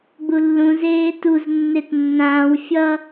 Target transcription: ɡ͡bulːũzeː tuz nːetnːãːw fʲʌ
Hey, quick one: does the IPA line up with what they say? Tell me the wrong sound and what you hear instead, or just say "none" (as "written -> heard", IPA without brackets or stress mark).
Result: none